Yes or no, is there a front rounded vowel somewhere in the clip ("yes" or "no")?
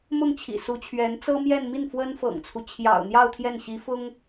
no